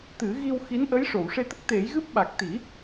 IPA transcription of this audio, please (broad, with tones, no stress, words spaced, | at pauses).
t̪ɨ˨˩˦ ɣi˧wxi˧˥nʔə˧˥j ʂo˨˩˨wʂe˧t̪ə˦˥k̚ t̪e˨˩˦jɣɨ˦˥p̚ɓa˨˩k̚ t̪i˨˩˦